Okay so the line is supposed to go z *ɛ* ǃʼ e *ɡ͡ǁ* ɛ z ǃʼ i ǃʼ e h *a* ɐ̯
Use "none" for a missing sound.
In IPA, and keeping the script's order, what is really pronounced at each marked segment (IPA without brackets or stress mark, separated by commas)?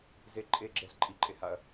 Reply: e, ɡ͡ǁ, a